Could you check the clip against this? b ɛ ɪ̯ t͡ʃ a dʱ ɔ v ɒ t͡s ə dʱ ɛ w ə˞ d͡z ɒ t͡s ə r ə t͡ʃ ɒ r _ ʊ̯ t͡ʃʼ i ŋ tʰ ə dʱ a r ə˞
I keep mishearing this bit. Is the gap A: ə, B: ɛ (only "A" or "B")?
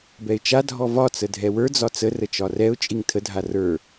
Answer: B